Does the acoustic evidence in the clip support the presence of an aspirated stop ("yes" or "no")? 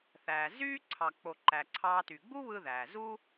yes